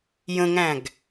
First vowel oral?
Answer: no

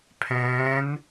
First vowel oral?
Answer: no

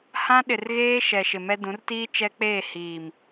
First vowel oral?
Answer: no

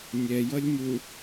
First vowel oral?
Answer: yes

